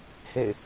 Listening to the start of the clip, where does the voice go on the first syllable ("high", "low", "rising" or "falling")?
falling